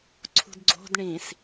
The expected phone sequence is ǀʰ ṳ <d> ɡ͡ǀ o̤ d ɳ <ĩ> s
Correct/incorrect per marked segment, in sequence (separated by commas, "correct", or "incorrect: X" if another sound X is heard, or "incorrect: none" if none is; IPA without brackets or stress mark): correct, correct